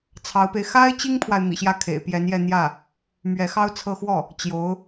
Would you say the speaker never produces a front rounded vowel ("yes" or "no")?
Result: yes